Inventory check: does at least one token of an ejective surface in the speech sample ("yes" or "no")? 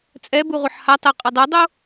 yes